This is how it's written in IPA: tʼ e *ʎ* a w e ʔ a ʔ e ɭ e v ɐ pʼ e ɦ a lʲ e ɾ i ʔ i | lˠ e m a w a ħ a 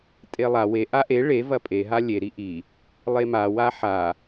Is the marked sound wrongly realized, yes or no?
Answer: yes